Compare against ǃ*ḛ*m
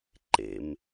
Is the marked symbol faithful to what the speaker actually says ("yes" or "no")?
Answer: yes